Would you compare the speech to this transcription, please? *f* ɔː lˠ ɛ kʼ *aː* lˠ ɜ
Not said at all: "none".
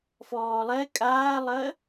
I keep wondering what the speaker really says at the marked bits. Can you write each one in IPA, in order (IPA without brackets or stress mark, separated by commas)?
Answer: f, aː